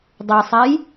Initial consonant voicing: voiced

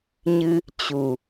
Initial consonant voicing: voiced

